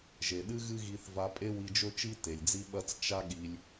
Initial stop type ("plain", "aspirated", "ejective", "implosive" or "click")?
implosive